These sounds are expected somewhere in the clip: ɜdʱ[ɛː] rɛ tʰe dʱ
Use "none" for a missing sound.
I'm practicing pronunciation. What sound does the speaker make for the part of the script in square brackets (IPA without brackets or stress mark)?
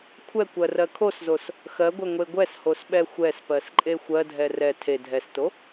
ɛ